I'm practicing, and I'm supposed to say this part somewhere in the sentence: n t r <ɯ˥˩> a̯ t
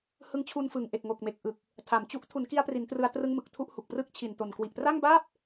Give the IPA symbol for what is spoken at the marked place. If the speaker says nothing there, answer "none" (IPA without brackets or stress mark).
ɯ˧